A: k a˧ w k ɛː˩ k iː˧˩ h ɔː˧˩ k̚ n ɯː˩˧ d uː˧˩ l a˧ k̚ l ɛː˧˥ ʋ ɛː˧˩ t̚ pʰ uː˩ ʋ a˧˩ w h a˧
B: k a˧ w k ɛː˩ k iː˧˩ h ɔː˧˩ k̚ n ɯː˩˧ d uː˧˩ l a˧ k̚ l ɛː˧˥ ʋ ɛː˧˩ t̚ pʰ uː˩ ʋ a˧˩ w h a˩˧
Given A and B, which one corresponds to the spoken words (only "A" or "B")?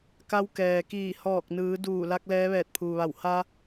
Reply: A